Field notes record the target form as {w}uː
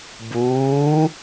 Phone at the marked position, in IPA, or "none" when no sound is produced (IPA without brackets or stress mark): b